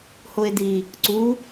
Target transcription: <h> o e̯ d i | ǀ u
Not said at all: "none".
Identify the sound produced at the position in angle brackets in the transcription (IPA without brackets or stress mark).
h